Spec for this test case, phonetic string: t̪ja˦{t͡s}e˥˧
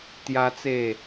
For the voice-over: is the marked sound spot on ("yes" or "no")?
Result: yes